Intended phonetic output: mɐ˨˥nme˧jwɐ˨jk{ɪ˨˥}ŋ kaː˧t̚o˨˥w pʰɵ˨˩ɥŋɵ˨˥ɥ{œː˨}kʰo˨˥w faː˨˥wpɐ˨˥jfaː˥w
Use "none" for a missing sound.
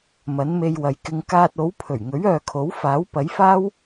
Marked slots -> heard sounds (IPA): ɪ˧, œː˨

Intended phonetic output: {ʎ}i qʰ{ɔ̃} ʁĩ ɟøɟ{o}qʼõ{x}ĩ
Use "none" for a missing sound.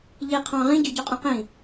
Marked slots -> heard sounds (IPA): ʎ, ɑ̃, o, q

